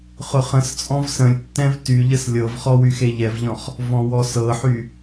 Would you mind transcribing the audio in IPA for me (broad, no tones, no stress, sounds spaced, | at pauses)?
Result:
χ ʊ χ ə̃ s t͡sʼ ɔ̃ v s ə̃ lʲ tː ɛ̃ v t y ʎ ə s lʲ ɤ v χ ɔ w y x e ʎ ɛ v ʎ ɔ̃ χ | v ɔ̃ w ɔ s ɤ ħ y